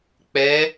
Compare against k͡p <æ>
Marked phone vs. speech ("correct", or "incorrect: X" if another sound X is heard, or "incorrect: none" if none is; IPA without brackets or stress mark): incorrect: ɛ